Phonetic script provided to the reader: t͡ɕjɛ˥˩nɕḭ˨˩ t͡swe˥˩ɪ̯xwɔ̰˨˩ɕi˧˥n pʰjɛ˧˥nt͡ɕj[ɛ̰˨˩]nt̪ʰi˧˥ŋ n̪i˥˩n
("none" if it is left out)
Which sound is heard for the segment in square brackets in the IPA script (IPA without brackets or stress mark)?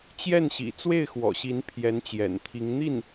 ɛ̰˨˩